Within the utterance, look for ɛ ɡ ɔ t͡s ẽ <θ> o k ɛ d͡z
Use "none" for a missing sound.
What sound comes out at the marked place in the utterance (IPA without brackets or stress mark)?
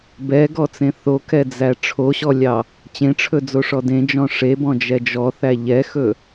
θ